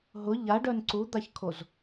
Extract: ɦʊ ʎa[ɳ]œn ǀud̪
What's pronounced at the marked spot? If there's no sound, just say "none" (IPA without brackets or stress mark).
ɖ